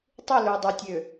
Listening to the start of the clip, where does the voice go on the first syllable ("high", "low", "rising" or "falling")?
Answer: falling